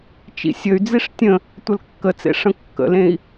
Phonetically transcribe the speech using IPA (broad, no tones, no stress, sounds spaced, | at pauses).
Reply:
t͡ʃ ḭ sʲ ə y̯ d͡z i ʂ tʲ ə̃ | tʷ ə l kː ə t͡s ḛ ʂ ə̃ kː ə̰ l ẽ i̯